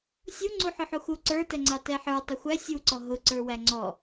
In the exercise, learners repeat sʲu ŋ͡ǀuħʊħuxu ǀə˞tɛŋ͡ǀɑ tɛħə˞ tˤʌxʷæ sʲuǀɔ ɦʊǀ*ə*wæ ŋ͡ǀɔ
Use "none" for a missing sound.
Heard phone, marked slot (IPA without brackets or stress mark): ə˞